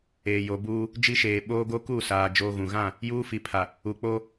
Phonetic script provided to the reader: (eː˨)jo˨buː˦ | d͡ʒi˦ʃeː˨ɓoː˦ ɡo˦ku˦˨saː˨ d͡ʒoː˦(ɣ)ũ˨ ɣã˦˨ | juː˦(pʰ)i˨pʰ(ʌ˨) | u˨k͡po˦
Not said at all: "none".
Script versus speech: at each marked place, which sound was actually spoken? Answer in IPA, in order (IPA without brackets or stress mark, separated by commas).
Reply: eː˨, ɣ, f, a˨